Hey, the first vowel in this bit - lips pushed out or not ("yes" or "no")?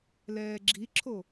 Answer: no